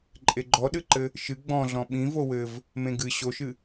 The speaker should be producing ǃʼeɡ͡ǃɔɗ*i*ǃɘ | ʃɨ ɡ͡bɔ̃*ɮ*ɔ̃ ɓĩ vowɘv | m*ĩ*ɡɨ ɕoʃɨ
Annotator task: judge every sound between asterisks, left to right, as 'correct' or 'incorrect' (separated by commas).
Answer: incorrect, correct, incorrect